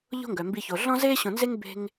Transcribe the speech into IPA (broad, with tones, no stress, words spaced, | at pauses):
ʎo̤˦ŋɡœ˩mbi˨ço˩ ɮɔ̃˦zeː˦ɕõ˨nze˦ŋ be̤˦ŋ